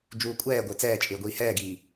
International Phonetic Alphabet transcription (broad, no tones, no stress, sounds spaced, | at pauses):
d͡ʒ uː kʷʼ ɛː ɡʷ ɪː t͡s ɛː t͡ʃʼ ɪː ɡʷ iː h ɛː ɡ iː